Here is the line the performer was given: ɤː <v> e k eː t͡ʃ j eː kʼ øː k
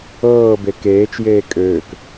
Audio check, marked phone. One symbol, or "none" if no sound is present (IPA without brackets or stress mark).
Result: b